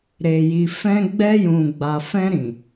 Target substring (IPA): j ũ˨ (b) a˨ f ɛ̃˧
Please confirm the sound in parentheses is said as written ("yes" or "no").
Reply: no